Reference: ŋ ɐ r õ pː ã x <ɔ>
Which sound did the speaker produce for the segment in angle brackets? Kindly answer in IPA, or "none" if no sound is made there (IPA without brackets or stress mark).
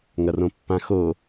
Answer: o